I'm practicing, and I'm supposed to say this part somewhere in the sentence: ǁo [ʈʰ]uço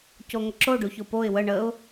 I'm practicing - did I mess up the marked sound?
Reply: yes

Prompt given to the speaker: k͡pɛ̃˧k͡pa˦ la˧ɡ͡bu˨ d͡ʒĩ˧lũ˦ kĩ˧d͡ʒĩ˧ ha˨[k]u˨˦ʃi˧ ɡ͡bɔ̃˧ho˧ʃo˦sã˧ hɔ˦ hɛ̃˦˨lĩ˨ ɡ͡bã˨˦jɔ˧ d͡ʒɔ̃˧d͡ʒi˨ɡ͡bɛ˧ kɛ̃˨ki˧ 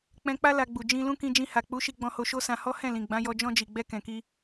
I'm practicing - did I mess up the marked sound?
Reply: yes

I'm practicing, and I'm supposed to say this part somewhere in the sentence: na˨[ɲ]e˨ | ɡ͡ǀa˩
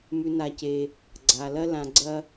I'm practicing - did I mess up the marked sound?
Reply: yes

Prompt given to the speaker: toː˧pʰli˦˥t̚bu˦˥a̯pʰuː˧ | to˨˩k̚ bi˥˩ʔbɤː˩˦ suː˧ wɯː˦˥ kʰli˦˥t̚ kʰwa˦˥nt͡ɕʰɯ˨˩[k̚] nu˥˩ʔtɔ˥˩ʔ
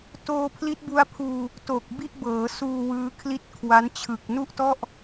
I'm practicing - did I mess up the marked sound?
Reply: no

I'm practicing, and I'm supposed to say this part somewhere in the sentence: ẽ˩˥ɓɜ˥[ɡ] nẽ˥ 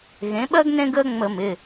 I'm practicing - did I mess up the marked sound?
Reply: no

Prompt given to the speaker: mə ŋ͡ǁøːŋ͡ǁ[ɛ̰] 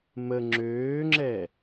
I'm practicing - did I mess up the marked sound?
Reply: yes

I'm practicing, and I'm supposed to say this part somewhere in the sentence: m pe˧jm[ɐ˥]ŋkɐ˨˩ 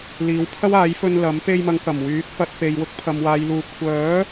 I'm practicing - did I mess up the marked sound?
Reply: yes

